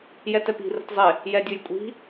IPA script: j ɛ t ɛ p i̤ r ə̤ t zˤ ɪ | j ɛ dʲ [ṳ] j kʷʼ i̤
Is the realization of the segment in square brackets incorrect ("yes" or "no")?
yes